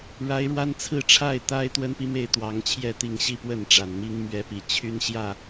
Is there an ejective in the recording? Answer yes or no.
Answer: no